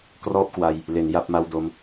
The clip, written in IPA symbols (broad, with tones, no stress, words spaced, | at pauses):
krɔː˥˩p̚kwa˧j | le˩˦n ja˥˩p̚ma˥˩w do˧m